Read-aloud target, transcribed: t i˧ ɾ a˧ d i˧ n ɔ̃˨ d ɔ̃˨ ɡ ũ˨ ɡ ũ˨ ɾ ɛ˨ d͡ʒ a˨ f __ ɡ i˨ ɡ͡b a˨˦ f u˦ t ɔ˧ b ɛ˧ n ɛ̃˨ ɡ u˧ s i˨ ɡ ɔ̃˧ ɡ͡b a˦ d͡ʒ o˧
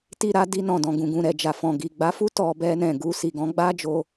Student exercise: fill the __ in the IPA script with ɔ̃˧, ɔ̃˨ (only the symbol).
ɔ̃˨